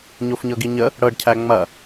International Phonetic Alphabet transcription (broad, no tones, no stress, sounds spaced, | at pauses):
ɲ o f ɲ ɤ ɡ i ɲ ə | ɽ ɤ ɖ cʰ æ ŋ͡m ɐ